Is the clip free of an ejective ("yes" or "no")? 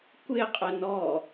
no